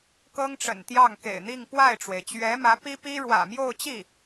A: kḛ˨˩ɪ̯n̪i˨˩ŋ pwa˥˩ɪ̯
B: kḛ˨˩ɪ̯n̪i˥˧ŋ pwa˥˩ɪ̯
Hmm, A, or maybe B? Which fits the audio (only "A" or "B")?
B